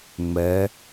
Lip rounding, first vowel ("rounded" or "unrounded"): unrounded